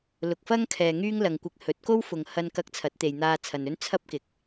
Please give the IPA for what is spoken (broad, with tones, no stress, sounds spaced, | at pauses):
l ʊ˨ k̚ f ɐ˥ ŋ kʰ ɛː˨ ŋ yː˥ ŋ l ɐ˨ ŋ kʷ ɪ˧ k̚ h ɵ˨˥ t̚ k o˥ w f ʊ˨ ŋ h ɐ˧ n k ɐ˧ k̚ t͡sʰ ɐ˨˥ t̚ t̪ e˨ j n̪ aː˧ t͡sʰ ɐ˨ n ɵ˥ n t͡sʰ ɐ˥ p̚ k ɪ˨ k̚